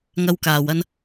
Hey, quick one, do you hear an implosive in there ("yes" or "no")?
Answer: no